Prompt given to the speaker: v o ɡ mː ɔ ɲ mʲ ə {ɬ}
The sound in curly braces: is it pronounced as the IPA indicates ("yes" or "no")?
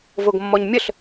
yes